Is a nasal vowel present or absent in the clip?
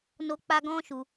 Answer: present